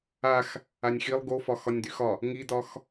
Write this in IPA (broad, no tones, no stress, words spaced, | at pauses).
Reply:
ax | anʲxilˠ ɡofɒ xɒnʲdyxɒ | ŋidɒx